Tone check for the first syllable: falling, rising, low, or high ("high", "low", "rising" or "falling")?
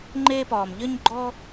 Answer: high